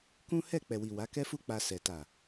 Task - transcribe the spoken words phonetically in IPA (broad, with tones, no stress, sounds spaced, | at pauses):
k ũ˦ h ɛ˦˨ k͡p ɛ˨ w i˨ w a˨˦ k ɛ˦ f u˦ k͡p a˧ s ɛ˨ t a˨